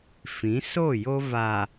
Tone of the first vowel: rising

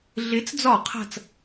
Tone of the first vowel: rising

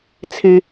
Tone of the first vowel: high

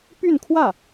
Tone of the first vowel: falling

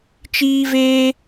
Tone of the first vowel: high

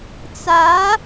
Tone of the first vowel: rising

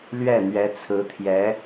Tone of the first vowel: falling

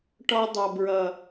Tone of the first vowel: high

